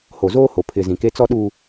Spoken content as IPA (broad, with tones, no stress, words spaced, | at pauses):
ho˨zoː˦ho˨ pʰɪ˨ zĩ˨ke˦ t͡sɔ˦ɗu˦